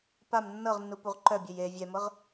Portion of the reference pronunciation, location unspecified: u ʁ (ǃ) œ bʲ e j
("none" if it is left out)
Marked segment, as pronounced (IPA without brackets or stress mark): ǃ